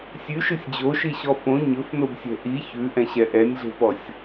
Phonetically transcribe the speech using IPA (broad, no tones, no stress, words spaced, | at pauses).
sʲʉʃɯsʲ d͡ʑoʃiɕɔ fõ ɲɵfnobsʲɛ̤ ʔi çʉʔɛ̃ɕɛ ʔɛnʲɮe̤pɔsʲ